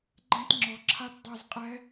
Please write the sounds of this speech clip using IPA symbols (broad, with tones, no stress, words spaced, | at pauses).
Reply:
ɡ͡ǃɛ̃˦tŋ͡ǁɔ˨ǁʰa˦t dˤɛ˨zqʼɛ˨˦